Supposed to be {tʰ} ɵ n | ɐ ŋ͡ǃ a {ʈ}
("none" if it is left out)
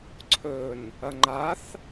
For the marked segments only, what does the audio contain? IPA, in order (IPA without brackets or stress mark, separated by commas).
ǀʰ, θ